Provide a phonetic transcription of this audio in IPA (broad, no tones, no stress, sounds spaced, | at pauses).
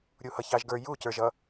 ɾʲ u h ʌ ç ɑ ʒ ɡ ə˞ j u c ə˞ ʒ ʌ